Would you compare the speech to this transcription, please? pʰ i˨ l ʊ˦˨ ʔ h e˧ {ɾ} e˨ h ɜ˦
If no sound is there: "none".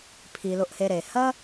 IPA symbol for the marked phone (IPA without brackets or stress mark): ɾ